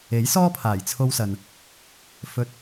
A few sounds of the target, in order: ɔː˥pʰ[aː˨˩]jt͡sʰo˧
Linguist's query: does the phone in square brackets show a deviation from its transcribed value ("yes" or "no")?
no